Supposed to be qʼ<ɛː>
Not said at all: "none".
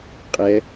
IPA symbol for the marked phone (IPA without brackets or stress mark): ɛ